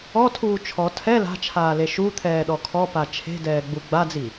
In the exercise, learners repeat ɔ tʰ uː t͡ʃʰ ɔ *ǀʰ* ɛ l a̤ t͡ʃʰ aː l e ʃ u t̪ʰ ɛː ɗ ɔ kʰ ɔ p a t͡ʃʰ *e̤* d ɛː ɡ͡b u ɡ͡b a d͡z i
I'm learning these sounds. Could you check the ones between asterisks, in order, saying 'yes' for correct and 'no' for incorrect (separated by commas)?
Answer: no, yes